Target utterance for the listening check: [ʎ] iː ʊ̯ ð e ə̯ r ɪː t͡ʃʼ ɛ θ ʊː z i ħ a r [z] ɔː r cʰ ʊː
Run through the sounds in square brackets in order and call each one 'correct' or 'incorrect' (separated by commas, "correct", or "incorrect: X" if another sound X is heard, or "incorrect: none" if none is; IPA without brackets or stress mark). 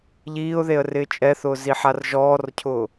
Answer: correct, incorrect: ʒ